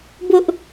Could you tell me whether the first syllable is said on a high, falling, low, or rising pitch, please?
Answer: high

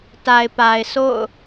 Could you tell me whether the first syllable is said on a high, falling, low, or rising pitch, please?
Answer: low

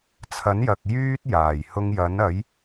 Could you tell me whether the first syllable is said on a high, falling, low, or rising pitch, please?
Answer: rising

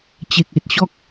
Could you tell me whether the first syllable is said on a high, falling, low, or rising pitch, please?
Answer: low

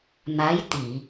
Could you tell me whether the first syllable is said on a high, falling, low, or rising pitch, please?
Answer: rising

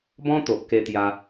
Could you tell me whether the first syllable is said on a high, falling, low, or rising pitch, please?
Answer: high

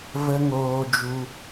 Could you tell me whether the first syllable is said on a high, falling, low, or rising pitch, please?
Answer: high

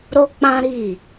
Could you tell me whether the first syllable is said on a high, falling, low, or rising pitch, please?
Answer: high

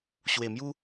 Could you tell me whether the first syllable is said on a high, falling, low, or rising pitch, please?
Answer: low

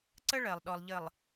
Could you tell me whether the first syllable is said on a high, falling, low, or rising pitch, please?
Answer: high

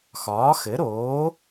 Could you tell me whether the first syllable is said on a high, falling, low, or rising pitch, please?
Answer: rising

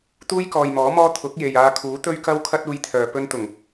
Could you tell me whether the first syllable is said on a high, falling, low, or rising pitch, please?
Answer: high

